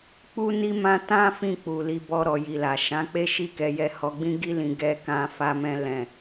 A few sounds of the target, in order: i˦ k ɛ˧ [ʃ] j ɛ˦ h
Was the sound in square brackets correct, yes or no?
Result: no